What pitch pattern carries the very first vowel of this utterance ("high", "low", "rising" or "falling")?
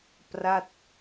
falling